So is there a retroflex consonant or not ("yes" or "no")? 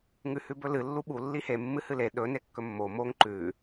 no